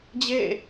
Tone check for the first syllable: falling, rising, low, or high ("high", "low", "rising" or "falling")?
falling